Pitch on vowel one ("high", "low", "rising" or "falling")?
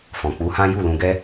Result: low